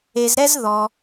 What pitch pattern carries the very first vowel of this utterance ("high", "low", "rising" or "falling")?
low